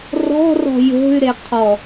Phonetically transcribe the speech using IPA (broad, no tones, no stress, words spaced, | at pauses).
rɔ̤rɔ̤ jo̤y̯ɾe qʰɔ